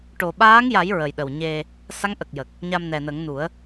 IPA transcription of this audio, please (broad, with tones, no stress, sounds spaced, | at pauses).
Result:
ʈ o˨˩ ɓ aː˧˥ ŋ j a˨˩˦ j ɹ ə˨˩ j ɗ ə˨˩ w ɲ e˧ | s a˧˥ ŋ ʔ ə˨˩ k̚ j ə˨˩ k̚ | ɲ a˧ m n ɛ˨˩ n ə˨˩˦ ŋ n u˨˩˦ ə̯